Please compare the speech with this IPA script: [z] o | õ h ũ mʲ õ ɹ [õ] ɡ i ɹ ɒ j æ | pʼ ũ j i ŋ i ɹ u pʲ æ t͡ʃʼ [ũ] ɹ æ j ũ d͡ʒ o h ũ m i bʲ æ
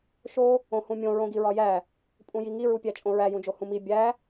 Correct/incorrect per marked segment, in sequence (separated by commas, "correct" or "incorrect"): incorrect, correct, incorrect